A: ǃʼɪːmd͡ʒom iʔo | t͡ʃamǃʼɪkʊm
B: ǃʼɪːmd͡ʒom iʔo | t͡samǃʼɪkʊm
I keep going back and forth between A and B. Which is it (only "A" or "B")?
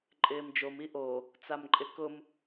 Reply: B